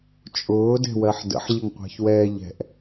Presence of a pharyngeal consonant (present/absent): present